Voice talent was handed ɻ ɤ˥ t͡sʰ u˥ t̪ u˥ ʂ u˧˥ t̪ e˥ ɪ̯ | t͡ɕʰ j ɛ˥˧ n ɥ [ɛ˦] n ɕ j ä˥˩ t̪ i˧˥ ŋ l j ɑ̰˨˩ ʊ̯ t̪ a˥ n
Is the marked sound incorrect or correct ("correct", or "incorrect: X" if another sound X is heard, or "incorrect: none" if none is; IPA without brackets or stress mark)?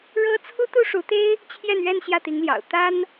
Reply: incorrect: ɛ˥˧